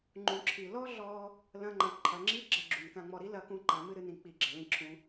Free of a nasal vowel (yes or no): no